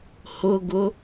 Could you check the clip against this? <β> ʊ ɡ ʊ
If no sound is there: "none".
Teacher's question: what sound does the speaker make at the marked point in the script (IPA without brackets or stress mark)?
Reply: h